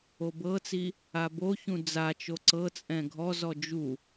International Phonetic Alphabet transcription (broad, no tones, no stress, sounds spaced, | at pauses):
o b ɤ t͡s i | a b o ç ũ d͡z a t͡ʃ o ǀ ɤ t͡sʼ ɛ̃ ɡʱ ɔ z ɔ d͡ʒ u